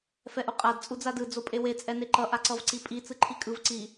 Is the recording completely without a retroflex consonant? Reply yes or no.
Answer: yes